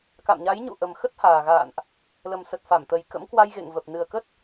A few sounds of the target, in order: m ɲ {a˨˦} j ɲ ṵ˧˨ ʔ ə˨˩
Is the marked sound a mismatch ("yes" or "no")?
no